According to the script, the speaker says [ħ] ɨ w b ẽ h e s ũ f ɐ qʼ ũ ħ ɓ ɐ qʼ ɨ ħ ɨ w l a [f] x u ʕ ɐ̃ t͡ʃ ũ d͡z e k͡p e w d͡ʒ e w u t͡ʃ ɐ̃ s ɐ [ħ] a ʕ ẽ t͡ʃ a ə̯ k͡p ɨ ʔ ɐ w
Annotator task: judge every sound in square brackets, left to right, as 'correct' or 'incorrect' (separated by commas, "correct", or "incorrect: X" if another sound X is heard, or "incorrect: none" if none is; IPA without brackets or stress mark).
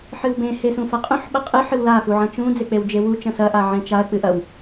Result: correct, incorrect: none, incorrect: ʔ